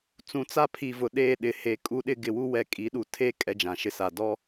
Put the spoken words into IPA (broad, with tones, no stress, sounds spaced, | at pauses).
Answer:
t͡s ũ˨ t͡s a˦ pʰ i˨ v ʊ˨ ɗ eː˦˨ ɗ ɪ˨ h e˨ kʼ u˦ ɗ ɪ˦ ɡ ɪ˨ w u˦ w ɛ˨ kʼ i˨˦ ɗ u˨ tʰ e˦ kʼ ɛ˦ d͡ʒ ã˨ ʃ ɪ˦ s a˨ d ɔ˦